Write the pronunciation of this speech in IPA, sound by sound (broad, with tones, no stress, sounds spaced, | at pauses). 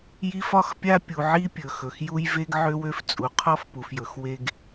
j i˦ f ɒ˦ x pʲ a˦ pʲ u˨ ʕ i˦ pʲ ɵ˨ x ɵ˨ x j u˦ j v e˦ ɡ ʕ ø˦ w ø˦ f t͡sʼ u˨ qʰ ɔ˦ f p u˨ f j ɵ˨˦ x w e˦ ɡ